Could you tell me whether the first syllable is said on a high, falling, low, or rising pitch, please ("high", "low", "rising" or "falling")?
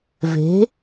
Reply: rising